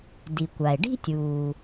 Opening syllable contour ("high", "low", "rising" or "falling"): low